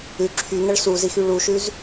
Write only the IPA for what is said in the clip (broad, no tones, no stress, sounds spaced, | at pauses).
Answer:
ʉ ǁʰ y ŋ ə ɭ s u z i x y ɭ u ʃ ʉ z